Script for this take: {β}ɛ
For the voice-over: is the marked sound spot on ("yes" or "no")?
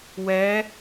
no